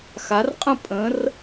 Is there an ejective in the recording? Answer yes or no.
yes